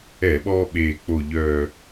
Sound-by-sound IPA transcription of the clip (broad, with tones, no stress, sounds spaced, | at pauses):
ɛ˧˩˧ ɓ ɔː˧ ɓ eː˨˩ k͡p o˨˩ ʎ œː˨˩